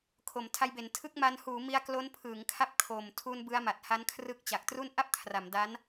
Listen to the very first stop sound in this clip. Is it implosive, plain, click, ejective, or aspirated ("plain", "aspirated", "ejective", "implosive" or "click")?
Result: aspirated